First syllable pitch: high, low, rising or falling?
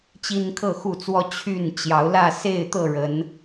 high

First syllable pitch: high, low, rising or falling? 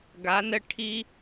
rising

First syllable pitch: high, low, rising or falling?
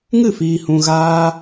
falling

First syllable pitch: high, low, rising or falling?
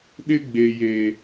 high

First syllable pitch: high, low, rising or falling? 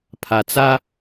low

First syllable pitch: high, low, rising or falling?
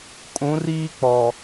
rising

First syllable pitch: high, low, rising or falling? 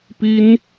high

